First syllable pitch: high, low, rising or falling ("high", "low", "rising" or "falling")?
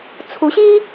rising